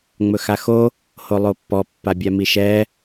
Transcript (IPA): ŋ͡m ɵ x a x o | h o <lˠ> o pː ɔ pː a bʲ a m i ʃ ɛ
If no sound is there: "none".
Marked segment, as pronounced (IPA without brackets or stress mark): lˠ